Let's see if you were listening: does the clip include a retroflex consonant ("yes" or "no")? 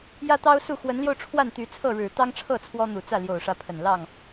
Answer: yes